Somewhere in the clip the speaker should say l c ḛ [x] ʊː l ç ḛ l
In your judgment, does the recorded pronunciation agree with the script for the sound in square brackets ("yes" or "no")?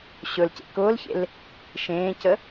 no